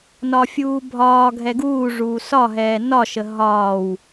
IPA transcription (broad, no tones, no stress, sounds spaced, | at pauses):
n ɒ fʲ uː bʱ ɒː ɡʱ ɛ ɡ uː ʐ uː s ɒ ɦ ɛː n ɒ ʃ ə ɦ ɒː w